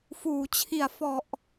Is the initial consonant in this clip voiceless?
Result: yes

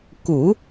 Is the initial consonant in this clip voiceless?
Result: yes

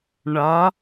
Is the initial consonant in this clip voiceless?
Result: no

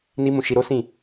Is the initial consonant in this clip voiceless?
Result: no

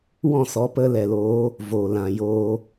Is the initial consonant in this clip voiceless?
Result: no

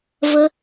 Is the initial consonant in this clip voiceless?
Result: no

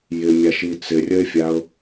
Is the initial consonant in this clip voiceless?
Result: no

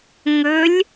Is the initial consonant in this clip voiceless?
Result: no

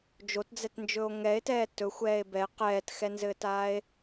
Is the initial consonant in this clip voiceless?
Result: no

